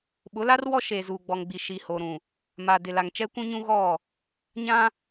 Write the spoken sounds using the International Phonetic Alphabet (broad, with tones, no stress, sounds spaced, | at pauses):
ɓ ʊ˨˦ l a˦ r w ɔ˦ ʃ eː˨ z uː˨ ɡ͡b ɔ˨ ŋ ɡ͡b i˨ ʃ i˨ h o˨ ɾ ũ˨ | m a˨ d ɪ˨ l a˨ ŋ t͡ʃ ɛ˦ kʷ ũ˦ ɲ ũ˦ ɣ ɔ˦˨ | ɲ ã˦